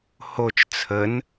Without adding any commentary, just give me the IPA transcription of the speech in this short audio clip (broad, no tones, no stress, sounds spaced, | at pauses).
h o t͡ʃ t͡sʰ ə n